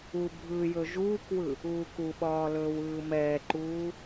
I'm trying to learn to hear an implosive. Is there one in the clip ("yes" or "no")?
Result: yes